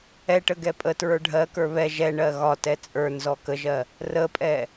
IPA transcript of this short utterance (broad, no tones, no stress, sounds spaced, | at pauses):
ɛ ʈ ə ɡ ɛ pʼ ə t ɹ ə˞ ɖʱ ɜ k ə˞ β ɛ ʒ ɛ ɳ ɜ ɣ ɒ t ɛ t͡sʼ ə˞ n z ɔ k ə ʒ ɜ | r ə pʼ ɛ